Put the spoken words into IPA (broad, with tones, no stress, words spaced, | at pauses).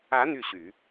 ä˧˥ n̪y˥˩ɕy˨˩˦